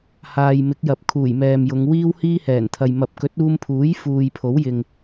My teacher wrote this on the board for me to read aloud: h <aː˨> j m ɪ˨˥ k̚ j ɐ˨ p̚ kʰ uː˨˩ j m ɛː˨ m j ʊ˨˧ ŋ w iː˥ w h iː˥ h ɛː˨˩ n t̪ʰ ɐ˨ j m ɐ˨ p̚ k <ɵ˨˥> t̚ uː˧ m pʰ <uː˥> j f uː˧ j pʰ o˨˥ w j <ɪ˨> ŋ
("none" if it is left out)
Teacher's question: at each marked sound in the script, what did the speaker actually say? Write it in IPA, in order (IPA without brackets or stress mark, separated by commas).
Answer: aː˨, ɵ˨˥, uː˨˥, ɪ˨